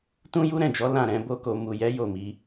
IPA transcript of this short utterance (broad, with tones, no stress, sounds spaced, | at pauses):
t ũ˦ j u˦ ɾ ɛ̃˦˨ d͡ʒ ɔ˨˦ l ã˦˨ ɾ ɛ̃˨˦ b o˦ k o˧ m u˨ j ɛ˨˦ j o˦˨ m i˨˦